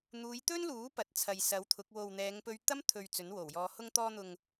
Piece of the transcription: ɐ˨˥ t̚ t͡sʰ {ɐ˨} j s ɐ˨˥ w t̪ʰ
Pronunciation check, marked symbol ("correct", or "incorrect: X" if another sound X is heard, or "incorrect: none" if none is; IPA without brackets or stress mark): correct